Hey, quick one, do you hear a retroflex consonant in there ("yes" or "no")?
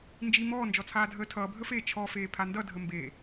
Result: no